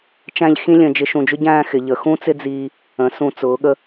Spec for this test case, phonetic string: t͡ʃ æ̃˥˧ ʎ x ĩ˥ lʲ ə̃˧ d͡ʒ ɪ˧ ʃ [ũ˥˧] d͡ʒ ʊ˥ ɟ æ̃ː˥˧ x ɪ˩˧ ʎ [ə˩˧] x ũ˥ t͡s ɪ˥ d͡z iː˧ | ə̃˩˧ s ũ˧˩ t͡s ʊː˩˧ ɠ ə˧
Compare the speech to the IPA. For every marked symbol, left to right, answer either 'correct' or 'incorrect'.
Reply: incorrect, correct

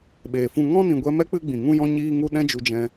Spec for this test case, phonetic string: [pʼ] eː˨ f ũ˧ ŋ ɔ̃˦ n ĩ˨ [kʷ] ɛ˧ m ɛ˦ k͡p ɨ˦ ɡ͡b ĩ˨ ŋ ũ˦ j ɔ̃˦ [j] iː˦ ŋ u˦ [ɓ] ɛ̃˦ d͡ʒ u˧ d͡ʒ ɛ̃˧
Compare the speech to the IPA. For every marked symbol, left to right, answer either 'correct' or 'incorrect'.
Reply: incorrect, incorrect, incorrect, incorrect

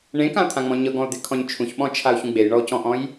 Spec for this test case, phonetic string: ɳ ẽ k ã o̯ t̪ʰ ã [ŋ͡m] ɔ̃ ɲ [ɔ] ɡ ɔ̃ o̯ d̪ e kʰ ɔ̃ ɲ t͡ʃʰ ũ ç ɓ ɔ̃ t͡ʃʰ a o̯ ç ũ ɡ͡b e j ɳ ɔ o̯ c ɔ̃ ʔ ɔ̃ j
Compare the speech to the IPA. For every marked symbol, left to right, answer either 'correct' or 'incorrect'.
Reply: correct, incorrect

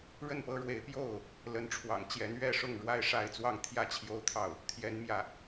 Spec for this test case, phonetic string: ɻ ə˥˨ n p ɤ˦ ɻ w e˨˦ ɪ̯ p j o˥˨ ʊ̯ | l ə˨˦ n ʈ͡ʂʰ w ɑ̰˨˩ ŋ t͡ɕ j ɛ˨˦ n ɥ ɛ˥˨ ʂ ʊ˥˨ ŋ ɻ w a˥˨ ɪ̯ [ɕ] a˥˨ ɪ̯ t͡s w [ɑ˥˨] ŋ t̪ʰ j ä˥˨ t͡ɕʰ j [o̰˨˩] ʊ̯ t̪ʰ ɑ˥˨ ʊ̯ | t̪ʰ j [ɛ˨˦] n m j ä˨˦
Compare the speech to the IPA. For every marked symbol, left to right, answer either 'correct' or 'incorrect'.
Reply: incorrect, correct, incorrect, correct

